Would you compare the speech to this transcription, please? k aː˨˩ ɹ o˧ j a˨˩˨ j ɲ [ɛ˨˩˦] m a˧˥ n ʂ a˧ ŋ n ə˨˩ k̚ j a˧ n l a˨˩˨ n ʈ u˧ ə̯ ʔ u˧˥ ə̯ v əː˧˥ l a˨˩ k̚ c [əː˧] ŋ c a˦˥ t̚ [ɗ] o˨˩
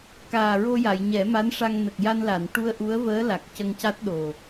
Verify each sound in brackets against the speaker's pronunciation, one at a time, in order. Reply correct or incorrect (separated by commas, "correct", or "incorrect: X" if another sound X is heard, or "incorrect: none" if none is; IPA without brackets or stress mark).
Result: correct, incorrect: ə˧, correct